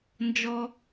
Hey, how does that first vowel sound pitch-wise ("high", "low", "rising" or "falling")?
low